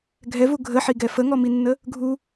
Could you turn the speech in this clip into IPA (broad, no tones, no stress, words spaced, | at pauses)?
ɡʱɛvu ɡʱəħiɡɛ fəŋɔminːə | ɡʱu